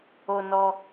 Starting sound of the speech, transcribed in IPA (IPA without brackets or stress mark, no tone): o